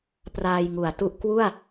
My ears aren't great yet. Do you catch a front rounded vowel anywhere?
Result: no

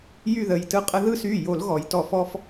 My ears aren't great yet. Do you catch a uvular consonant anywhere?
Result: yes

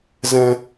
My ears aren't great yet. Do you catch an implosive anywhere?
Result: no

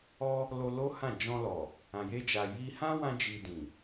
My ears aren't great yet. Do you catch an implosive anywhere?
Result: no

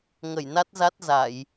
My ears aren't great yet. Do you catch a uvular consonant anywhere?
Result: no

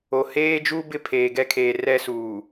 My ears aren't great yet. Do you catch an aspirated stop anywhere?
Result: yes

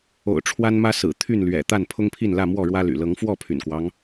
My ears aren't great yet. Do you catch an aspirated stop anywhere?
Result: yes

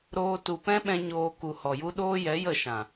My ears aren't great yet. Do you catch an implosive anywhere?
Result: yes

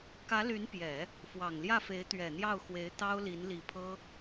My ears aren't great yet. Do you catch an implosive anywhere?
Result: no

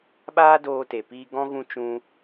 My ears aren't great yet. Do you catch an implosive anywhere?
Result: yes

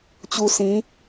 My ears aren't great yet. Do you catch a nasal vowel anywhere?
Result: yes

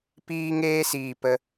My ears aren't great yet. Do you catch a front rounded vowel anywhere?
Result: no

